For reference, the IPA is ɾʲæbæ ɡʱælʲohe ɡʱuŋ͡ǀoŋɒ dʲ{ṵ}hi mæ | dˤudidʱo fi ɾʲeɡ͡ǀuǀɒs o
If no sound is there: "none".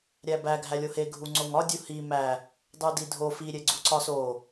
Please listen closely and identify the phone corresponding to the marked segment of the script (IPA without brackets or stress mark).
u